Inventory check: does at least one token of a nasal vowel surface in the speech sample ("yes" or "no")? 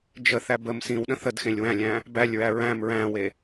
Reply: yes